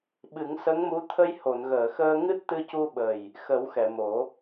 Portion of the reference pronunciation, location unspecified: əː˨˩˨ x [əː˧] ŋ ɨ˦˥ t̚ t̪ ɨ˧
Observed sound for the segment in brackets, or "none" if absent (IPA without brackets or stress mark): əː˧